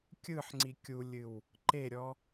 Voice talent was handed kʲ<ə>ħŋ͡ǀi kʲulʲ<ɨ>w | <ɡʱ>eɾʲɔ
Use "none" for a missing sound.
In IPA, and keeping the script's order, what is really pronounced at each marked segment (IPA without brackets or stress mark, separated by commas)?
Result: ɯ, ɨ, ǃ